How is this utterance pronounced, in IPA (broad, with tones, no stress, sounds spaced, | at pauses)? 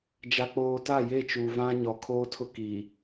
d͡ʒ a˨ k͡p oː˨ t a˦˨ j e˦˨ t͡ʃ uː˨ v ã˦ ɲ ɔ˨ kʰ oː˦ tʰ ʊ˦ k iː˨